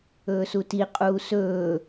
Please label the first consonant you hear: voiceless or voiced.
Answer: voiceless